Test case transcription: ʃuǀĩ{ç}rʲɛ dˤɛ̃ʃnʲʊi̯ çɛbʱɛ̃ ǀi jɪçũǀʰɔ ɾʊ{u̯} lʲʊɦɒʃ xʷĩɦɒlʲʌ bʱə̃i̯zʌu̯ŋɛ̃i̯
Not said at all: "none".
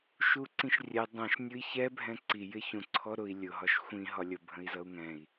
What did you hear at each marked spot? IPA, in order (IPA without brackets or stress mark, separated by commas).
ʃ, i̯